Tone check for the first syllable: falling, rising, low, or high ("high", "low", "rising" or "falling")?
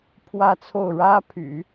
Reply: falling